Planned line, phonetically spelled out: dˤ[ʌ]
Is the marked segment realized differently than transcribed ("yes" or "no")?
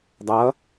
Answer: no